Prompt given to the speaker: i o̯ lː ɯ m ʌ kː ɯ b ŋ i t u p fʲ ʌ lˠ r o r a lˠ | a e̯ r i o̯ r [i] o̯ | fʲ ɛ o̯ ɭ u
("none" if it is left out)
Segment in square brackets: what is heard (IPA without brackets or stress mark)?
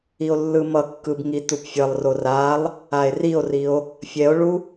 i